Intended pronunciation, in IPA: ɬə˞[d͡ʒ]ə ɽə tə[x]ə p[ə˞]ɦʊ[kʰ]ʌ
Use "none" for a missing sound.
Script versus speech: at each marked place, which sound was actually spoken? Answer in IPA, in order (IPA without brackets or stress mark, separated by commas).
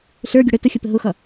ɡʲ, xʲ, ə, x